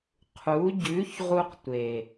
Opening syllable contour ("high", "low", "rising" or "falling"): rising